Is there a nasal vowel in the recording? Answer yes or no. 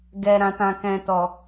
yes